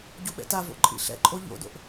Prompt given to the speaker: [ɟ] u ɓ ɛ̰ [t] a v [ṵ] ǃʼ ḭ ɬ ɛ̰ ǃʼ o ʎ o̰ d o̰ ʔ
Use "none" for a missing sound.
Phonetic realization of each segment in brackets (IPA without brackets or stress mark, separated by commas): ɟ, t, o̰